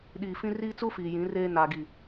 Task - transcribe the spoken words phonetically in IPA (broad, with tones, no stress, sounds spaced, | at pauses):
ɗ iː˨ f ĩ˦ r iː˦ t͡s u˦ f iː˨ j ĩ˨˦ r eː˦ n a˨ ɡ i˨